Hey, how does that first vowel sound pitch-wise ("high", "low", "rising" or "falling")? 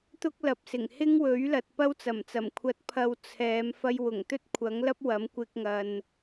high